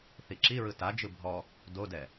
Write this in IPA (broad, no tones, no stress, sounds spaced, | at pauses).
θ i ǁ i ɹ ɯ t a d͡ʒ ɯ bʱ ɔ | d o d ɛ